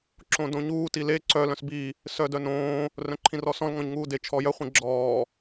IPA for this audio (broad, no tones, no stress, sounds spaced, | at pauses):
ǁ õ d õ ɲ uː t i l e ǀ œ l œ̃ s b i | s œ d œ n õː | r œ̃ ǃʰ ĩ r ɔ s ɔ̃ l ŋ ɔ̃ ɲ ŋ uː d e t͡ʃʰ ɔ j œ χʷ ĩ ɡ͡ǁ ɔː